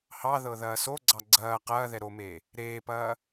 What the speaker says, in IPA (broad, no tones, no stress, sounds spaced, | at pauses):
h ɑ ð ɤ ð ɐː s o ɡ͡ǀ ɑ ɡ͡ǀ ɐː q ɐː ð ɛ ɾ o m eː | ɾ eː p ɐː